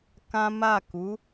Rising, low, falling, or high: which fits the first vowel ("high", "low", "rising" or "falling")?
high